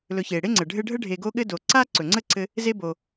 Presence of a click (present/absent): present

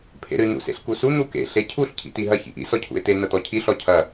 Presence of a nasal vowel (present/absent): absent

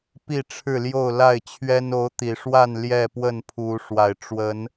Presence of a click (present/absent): absent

